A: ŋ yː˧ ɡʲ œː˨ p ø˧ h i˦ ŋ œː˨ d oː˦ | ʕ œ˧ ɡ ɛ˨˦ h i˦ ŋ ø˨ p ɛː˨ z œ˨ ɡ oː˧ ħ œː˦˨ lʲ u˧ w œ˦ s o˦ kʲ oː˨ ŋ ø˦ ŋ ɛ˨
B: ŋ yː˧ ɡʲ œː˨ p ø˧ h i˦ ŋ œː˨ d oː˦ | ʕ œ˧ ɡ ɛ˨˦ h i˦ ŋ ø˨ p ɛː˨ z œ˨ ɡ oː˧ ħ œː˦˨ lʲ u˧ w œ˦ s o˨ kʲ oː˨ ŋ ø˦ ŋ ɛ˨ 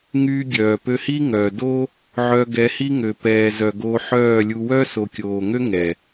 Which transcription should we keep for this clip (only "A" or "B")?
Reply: B